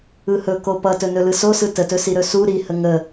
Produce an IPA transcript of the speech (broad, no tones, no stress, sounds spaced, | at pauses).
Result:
ɯ h ɵ k o p ʌ t ɵ n ɵ l ɯ s o s ɯ t ə t ɵ s i ɾ ɵ s u ɾ i h ə ŋ ə